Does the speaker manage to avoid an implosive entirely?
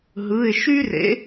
yes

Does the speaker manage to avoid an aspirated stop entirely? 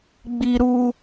yes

